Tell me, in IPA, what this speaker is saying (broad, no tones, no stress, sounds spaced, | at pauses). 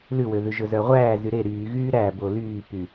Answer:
l ʉ w ø ð ʉ ʒ ɵ z œ ʁʷ æː z y ɾ e ɾ yː ɣ yː ɾ æ b o l yː p y